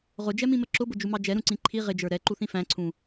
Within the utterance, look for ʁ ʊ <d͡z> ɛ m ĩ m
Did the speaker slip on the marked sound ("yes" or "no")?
yes